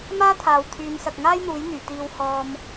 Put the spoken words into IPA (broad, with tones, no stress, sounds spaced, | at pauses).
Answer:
m aː˥ t̪ʰ aː˨ w t̪ʰ yː˨˧ n s ɐ˨ k̚ ŋ aː˥ j n̪ uː˨˥ j n̪ yː˨˩ t̪ iː˧ w h ɔː˧ m